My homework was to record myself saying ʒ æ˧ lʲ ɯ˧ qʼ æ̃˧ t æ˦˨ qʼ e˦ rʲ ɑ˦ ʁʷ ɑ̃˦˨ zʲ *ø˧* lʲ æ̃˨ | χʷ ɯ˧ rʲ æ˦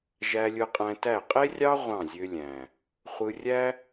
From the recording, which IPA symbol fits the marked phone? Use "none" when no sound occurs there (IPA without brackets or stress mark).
ø˧